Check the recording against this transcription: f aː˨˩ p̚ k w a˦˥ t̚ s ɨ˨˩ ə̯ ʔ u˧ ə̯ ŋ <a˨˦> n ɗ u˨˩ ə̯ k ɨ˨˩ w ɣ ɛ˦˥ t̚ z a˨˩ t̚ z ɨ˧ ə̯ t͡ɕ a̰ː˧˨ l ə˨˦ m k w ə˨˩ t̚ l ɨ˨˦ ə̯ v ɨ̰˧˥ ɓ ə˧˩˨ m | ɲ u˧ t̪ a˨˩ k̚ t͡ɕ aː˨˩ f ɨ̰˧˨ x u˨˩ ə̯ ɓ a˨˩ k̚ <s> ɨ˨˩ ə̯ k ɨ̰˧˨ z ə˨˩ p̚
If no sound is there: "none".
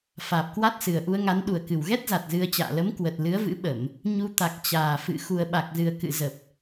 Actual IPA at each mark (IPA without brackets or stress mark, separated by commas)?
a˨˦, z